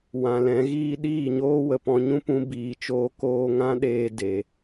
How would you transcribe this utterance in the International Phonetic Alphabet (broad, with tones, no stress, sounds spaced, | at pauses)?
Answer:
w ã˨ l ɛ̃˨˦ ɣ iː˦ ɗ iː˦˨ ɲ oː˦ w ə˨ p ɔ̃˧ ɲ ũ˦ p ũ˦ b iː˨ t͡ʃ oː˧ k oː˦ ŋ ã˦ ɗ eː˧ d e˨